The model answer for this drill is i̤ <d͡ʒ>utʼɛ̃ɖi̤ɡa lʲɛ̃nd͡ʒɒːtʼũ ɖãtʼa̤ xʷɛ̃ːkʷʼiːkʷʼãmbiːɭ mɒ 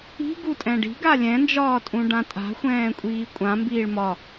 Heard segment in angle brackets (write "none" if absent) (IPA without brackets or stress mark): ɡ